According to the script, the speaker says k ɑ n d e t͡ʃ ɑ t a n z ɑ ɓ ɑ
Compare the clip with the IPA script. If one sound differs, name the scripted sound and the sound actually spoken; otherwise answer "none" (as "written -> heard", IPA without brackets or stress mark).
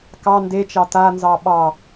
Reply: none